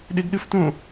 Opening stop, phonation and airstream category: implosive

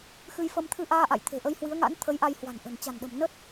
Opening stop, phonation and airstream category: aspirated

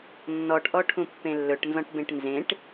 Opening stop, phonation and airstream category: plain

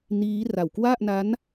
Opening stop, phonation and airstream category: plain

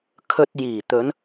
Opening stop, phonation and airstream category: aspirated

